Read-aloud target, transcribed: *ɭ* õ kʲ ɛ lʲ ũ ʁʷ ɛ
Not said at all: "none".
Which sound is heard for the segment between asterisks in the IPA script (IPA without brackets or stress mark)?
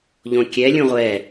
ʎ